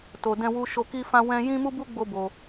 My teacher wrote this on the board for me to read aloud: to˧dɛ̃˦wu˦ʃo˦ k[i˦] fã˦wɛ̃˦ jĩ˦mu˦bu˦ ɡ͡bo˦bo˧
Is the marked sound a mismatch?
no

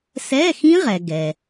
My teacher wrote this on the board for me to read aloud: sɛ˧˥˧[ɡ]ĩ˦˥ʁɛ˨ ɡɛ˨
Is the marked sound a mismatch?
yes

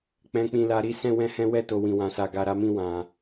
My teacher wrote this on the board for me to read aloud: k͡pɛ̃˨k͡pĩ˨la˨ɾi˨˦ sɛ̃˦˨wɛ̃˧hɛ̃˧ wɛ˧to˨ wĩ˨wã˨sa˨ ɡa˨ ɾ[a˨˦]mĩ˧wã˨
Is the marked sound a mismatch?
no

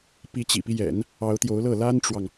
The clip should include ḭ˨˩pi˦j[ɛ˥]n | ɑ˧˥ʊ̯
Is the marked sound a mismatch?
yes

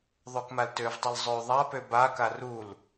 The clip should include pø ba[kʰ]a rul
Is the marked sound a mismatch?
yes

